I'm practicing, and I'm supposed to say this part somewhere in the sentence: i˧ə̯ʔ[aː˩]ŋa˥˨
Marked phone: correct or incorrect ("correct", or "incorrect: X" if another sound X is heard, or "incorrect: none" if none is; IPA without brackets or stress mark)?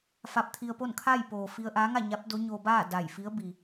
incorrect: aː˧˥